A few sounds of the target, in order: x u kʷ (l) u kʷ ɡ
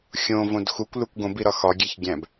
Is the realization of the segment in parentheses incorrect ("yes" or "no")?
no